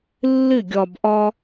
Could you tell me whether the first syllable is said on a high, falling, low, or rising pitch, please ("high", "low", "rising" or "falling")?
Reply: falling